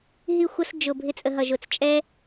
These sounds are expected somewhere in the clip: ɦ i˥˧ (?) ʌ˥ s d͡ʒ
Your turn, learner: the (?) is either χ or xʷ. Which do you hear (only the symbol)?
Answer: xʷ